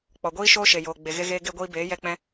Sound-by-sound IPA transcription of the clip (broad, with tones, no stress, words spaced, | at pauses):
k͡pɔ˨ɡʷiː˦ ʃoː˦ʃe˨joː˨ ɡ͡be˨ ɣe˧ɣeː˧ ɡe˦ɡʷiː˦ beː˨˦jɛ˧k͡pɛ̃˧